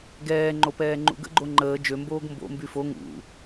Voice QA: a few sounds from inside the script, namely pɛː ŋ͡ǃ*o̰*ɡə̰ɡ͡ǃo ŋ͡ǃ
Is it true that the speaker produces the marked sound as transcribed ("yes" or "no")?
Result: no